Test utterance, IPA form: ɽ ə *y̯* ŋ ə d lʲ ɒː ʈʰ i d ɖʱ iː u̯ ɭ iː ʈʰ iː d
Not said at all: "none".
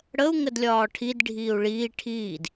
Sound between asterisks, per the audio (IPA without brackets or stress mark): u̯